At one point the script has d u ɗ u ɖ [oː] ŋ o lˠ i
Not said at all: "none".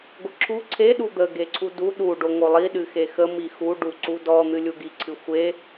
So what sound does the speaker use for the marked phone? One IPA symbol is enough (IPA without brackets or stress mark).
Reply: o